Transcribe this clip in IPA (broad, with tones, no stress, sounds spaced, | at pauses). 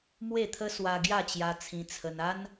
m w e˥˧ t̪ʰ ə˦ s w a˧ ɡ j a˥˧ t͡ɕ j a˧ t͡sʰ ĩ˧ t͡sʰ ə˧ n a˦ n